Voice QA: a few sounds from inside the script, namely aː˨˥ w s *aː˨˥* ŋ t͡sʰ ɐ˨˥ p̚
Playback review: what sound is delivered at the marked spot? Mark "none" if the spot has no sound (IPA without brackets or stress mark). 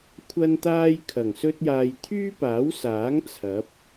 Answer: aː˨˥